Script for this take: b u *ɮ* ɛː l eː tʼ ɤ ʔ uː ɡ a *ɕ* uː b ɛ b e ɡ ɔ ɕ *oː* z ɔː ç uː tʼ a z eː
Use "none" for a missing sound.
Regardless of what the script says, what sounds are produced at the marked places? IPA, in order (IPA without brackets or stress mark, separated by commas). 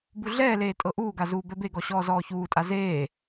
ɮ, z, ɔː